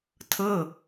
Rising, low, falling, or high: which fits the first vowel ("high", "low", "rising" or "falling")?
falling